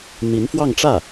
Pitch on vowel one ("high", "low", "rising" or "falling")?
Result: rising